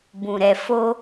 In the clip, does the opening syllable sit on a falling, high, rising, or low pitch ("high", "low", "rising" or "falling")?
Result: low